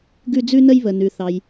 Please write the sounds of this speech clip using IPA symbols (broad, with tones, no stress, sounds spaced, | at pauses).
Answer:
ɡ ʉ˧ d͡z ʉ˧ n ə˧ j β ə˩ n ʉ˩ θ ɑ˩ j